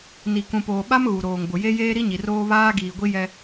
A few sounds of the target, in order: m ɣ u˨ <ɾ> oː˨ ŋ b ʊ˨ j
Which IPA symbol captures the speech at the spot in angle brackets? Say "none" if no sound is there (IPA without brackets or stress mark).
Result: ɾ